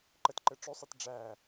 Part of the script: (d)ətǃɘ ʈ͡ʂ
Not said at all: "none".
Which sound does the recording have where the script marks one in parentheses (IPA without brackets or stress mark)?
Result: ǃ